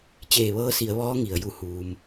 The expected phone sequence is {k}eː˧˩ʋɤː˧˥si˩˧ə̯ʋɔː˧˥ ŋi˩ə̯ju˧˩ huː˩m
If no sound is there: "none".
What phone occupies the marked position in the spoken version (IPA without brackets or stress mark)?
t͡ɕ